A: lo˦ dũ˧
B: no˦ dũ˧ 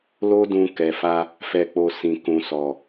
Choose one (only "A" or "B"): A